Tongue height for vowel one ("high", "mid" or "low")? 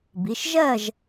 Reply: high